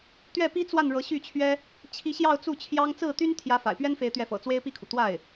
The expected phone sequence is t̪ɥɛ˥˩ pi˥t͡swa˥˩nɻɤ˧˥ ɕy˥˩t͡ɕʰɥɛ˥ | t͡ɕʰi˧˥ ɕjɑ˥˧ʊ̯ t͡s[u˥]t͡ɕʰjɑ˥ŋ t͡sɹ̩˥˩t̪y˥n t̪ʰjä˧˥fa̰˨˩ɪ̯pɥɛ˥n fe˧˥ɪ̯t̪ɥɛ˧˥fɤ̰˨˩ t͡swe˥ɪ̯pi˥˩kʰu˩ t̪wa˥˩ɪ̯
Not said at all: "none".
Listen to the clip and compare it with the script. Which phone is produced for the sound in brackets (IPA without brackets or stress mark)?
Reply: u˥˩